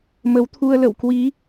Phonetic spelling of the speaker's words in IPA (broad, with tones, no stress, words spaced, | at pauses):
mə˨˦wt̪ʰu˧ə̯lə̰˧˨w kwi˨˦